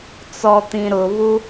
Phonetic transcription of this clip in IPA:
t͡s ɔ t̪ ĩ ɾ ʊ β u

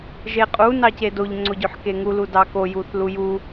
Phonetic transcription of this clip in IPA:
ʒ e qʼ u n ɑ c e d o ʎ ŋ͡ǀ o ɟ ø ħ k e ŋ u l u d ɑ k o j u θ l u j u

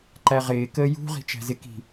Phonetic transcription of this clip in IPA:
ǃ æ ʁ ɪː k əː j ṳ ʁ i̤ t͡ʃ æ̤ z ɪ k i̤

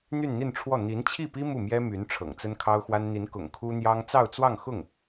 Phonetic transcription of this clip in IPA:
n̪ y˥˧ n n̪ i˥˧ n ʈ͡ʂʰ w ɔ˥˩ n̪ i˧˥ n t͡ɕʰ i˥˩ p i˥ m u˥˩ m j ɛ˥ m y˧˥ n ʈ͡ʂʰ ɤ̰˨˩ ŋ t͡s ə˥ n kʰ ɑ˥ ʊ̯ x w a˥ n n̪ i˧˥ n k ʊ̰˨˩ ŋ kʰ u˥ n̪ j ɑ˥ ŋ t͡s ɑ˥˧ ʊ̯ t͡s w ɑ˥˧ ŋ x ʊ˥˩ ŋ

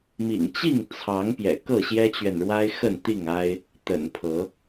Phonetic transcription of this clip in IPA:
m ḭ˨˩ ŋ t͡ɕ i˥˨ ŋ t͡sʰ ɑ˨˦ ŋ p j ɛ̰˨˩ k ɤ˥˨ ɕ j ɛ˦ t͡ɕ ɥ ɛ˨ n ɻ w a˦ ɪ̯ x ə˥˨ n t̪ i˥˨ ŋ a˦ ɪ̯ | t̪ ə̰˨˩ n pʰ ɤ˨˦

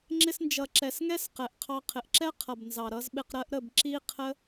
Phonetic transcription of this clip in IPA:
ŋ͡ǁ ɪ˧ s n d͡ʒ ʌ˨ ǁ ɛ˨ s ŋ ɛ˦ s q ɛ˨ ʔ qʰ ɑ˧ qʰ ɪ˨ ʔ ǁ ɛ˦ qʰ ʌ˨ b n z ɑ˨ ɾ ʌ˧ z ɓ ɪ˧ q ɾ ɜ˦ ʔ ɾ ə˦˨ b ǁ i˦ qʰ ə˦

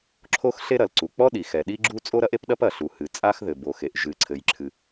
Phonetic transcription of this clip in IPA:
ǁʰ o˥ x ɬ e˥ ɾ ɐ˩ l ǀ u˩ k͡p ɔ˥ ɗ i˩ x ɛ˩ ɗ i˥ ɡ͡ǁ u˥ t͡sʼ o˥ ɾ ɐ˥ ʔ e˥ p ɗ ɐ˥ p ɐ˩ ɬ u˩ h ɨ˩ t͡sʼ a˥ x ð ɘ˩ b o˩ x e˩ ʔ ʒ ɨ˩ ǀʰ ɘ˩ j ǁʰ ɨ˩

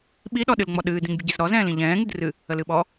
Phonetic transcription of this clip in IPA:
ɓ i ɗ ɔ ɗ ɨ l ŋ͡m ɔ ɗ ɨː d ĩ ŋ bʲ ə ɟ i z ɾ ɔ z ɛ̃ː l ĩ ʎ ɛ̃ː ŋ ɨ d r ɨ | ə l ɨ ɓ ɔ

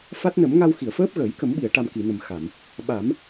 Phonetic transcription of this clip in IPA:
f a˦˥ t̚ n ə˨˩˦ m ŋ a˧ w x i˨˩˨ ə̯ f əː˦˥ p̚ ɣ əː˨˩˦ j k ə˨˩˦ m ɓ i˨˩˨ ə̯ ʈ a˨˩ m k i˨˩˨ n ə˨˩ m x a˨˩˨ m | ɓ a˨˩˦ m

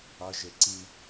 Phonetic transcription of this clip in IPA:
ɒ ʒ e ǀ i

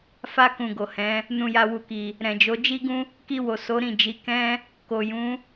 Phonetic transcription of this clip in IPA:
f a˧ k ũ˨ ɡ o˨ h ɛ̃˨˦ | n ũ˨ j a˨ w u˨ k i˨ | ɾ ɛ̃˨ d͡ʒ o˨˦ d͡ʒ i˦ ɡ ũ˦ | k i˧ w o˨ s o˨˦ ɾ ĩ˦˨ d͡ʒ i˨˦ k ɛ̃˦ | k o˨ j ũ˨˦

